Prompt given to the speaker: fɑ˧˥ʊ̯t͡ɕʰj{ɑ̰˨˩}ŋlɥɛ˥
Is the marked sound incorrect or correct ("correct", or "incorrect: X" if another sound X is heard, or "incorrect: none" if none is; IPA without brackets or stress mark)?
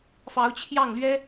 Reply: incorrect: ɑ˥˩